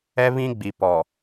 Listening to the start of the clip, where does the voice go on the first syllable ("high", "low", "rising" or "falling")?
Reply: high